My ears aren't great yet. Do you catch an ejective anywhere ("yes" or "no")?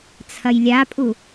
yes